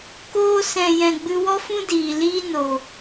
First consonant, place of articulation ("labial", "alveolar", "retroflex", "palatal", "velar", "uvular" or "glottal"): velar